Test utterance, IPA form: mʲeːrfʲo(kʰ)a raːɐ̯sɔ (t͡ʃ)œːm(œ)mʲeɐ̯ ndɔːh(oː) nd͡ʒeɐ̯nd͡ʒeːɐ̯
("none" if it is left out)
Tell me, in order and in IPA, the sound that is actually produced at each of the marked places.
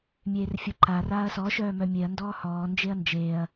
ǃ, ʃ, œ, ɔː

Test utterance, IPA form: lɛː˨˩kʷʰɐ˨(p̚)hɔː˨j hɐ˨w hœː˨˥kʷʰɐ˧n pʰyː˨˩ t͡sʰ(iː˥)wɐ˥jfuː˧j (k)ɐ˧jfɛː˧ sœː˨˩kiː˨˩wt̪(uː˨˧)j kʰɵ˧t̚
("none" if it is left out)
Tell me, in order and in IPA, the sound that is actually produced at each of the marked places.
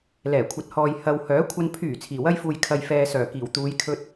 t̚, iː˨˩, kʰ, uː˨˧

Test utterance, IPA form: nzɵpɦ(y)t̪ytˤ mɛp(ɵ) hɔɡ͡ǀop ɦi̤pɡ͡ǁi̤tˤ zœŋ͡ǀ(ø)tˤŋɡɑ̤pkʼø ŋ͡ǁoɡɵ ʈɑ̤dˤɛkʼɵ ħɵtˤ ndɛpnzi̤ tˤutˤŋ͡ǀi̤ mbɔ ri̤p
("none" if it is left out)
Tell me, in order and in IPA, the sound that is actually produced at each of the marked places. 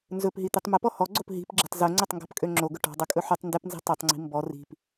i, ɔ, ɵ

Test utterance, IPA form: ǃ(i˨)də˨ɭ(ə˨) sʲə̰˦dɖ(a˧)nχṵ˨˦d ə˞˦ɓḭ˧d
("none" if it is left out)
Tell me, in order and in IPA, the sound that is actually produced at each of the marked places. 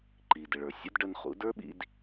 i˨, ə˞˨, ə˧

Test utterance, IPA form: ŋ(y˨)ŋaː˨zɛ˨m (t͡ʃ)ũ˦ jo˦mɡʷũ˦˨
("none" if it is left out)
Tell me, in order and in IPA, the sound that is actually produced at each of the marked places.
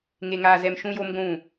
e˨, ʃ

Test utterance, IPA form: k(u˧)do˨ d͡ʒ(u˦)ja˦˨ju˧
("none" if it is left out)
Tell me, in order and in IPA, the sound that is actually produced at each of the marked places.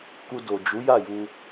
u˧, u˨˦

